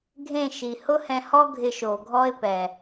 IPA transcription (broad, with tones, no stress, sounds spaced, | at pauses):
ɡʱ ẽ˦˨ ʃ i˨ h ʊ˦ h ɛ̃˧ h ɔ˦ ɡʱ ɪ˧ ʃ o˨ ɡʱ ɔ˦ ɪ̯ p ɛ˨